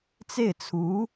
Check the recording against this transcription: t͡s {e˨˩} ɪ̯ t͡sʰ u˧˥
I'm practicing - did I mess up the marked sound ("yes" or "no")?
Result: yes